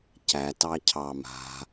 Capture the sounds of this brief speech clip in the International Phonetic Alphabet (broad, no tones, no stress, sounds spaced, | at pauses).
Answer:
c æ t ɑ cʰ ɑ m a̤